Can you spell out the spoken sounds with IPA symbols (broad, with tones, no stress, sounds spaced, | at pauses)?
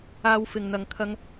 aː˧ w f ɪ˨ ŋ n̪ ɐ˨ ŋ kʰ ɐ˧ ŋ